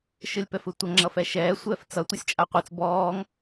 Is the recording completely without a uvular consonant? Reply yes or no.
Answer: no